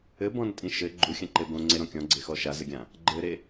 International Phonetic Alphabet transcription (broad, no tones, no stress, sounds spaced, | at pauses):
ɘ b ɔ̃ n tʼ ĩ ʃ ɘ ɡ͡ǃ u xʲ ã ǃ e b õ ŋ͡ǀ e ɾ ɔ̃ kʲ ɔ̃ ɡ͡ǀ e x ɔ ʃ a z ɘ ɡʲ ã | ɡ͡ǃ ɘ ɾ e